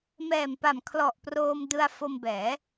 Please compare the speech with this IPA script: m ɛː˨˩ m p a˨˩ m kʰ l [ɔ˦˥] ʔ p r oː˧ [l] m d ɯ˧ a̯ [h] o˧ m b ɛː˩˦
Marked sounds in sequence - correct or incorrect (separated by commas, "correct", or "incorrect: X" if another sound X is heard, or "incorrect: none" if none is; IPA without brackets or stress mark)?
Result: incorrect: ɔ˨˩, incorrect: none, incorrect: f